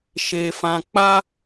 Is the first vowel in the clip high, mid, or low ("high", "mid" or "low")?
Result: mid